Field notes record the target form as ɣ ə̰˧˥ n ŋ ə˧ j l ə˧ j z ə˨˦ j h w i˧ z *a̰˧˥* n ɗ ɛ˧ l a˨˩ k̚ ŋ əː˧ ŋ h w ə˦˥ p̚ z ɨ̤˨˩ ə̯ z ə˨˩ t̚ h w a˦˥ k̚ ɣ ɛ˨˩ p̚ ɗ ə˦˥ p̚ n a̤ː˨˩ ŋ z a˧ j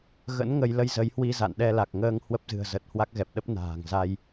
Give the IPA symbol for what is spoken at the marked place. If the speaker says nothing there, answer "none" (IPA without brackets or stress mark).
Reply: a̰˧˨